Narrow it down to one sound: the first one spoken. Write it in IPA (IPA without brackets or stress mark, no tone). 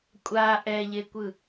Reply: kʷʼ